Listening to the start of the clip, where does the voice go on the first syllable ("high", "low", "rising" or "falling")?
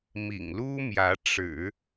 low